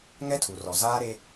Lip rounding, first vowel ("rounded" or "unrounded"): unrounded